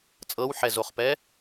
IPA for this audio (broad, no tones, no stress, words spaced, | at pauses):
t͡sʼɤwħɛzoχpɛ